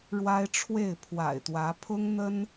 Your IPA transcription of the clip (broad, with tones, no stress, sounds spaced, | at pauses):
ɻ w a˦ ɪ̯ ʈ͡ʂʰ w e˥˨ ɪ̯ pʰ w a̰˨˩ ɪ̯ t̪ w ä˨˦ pʰ ʊ˦ ŋ n̪ ə˦ n